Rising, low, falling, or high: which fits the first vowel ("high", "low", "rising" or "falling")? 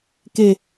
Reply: falling